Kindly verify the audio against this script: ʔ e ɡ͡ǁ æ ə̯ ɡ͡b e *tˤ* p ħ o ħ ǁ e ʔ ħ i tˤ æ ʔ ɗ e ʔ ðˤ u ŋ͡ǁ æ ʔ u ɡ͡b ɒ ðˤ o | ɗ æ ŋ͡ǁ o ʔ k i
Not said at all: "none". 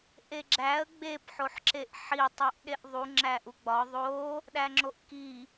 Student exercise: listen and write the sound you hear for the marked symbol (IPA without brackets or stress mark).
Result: none